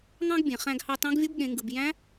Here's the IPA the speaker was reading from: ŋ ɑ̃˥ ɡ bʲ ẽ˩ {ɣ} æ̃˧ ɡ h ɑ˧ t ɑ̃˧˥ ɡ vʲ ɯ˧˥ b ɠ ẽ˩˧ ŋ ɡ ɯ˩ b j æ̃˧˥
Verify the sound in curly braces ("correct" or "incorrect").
incorrect